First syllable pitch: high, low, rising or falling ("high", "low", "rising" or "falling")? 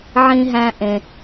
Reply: high